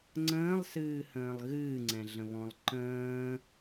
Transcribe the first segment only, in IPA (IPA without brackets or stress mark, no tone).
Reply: ŋ͡ǀ